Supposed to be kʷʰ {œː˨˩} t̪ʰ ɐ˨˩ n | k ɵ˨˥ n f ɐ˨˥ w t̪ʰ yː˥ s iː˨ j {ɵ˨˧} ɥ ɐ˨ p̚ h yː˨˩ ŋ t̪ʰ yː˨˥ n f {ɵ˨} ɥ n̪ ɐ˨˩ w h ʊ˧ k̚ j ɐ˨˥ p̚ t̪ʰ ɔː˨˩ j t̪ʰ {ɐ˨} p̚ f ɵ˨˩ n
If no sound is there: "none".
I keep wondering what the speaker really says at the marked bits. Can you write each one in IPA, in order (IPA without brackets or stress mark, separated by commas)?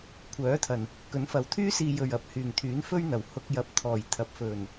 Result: œː˨˥, ɵ˨˩, ɵ˥, ɐ˨